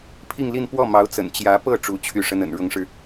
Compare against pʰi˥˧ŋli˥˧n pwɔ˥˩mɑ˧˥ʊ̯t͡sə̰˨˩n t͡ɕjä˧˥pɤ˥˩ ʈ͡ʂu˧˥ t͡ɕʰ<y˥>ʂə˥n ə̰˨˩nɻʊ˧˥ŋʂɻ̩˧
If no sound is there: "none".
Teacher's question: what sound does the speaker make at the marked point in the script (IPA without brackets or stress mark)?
y˥˩